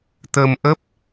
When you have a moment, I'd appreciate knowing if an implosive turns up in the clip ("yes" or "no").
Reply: no